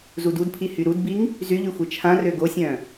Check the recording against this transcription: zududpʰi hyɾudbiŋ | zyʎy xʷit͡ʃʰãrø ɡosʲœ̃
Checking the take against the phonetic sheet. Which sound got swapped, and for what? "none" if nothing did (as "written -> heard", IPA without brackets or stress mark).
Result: none